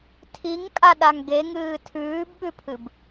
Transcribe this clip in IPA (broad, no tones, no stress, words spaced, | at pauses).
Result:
tʰiŋkʼa ɗaŋɡeŋɨː tʰʉːbɓʉpʰɨb